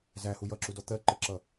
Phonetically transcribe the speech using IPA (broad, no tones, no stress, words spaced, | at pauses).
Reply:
zæhu jʌǁudɔ t̪ɜǃəǁʌ